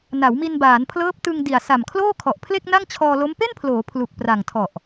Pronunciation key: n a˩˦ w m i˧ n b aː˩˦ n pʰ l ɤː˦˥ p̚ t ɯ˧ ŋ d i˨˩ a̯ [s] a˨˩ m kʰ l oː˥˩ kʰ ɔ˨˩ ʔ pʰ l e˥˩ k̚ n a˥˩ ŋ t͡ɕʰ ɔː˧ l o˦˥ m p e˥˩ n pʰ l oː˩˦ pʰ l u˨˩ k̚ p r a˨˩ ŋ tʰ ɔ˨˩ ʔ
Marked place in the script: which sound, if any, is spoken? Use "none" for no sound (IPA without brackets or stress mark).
s